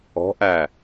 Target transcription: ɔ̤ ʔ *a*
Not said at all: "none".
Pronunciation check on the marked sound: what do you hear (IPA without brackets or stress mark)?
æ